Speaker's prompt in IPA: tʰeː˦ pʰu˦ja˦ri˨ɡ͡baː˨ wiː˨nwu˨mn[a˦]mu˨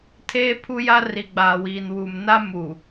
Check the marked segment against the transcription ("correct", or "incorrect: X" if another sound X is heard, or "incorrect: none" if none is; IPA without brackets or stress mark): correct